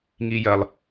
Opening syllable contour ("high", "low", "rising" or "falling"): low